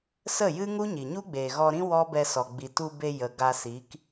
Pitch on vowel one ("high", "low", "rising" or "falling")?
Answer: falling